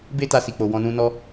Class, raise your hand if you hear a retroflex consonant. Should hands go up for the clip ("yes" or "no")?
no